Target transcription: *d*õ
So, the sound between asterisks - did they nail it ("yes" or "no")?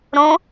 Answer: no